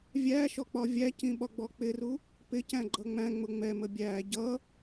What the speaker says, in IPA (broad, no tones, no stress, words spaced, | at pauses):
vʲæʃɔ k͡pɒvʲæcĩ ɓɒɡ͡bɔk͡pɪru | pɪcæ̃ ɡ͡ǃʌŋ͡mæ̃ŋ͡mʊ ŋ͡mɛmə bʲæ ɟʌ